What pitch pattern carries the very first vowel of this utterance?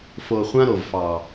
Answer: low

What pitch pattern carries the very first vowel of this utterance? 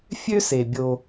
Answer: high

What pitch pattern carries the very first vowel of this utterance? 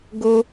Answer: high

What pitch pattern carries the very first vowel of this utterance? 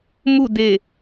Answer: falling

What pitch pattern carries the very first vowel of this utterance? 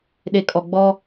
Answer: low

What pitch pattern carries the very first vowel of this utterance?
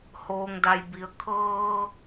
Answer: low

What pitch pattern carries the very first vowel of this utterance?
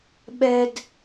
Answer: high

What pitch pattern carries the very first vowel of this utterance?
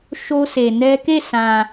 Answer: high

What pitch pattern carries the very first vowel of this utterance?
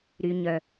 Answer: low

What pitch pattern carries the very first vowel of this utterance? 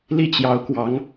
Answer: falling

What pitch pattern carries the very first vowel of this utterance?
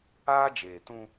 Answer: high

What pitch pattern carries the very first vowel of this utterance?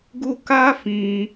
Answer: high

